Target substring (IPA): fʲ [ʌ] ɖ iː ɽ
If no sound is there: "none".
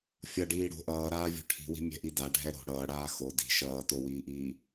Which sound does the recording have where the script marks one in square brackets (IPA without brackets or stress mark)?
ʌ